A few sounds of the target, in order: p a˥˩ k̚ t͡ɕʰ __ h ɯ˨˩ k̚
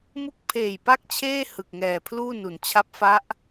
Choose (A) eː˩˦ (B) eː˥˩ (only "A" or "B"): B